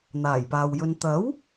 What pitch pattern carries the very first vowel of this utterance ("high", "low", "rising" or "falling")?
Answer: low